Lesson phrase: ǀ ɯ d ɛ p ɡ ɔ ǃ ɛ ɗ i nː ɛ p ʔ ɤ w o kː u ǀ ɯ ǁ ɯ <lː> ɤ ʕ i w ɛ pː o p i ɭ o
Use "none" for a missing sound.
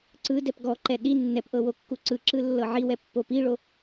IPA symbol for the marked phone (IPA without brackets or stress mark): lː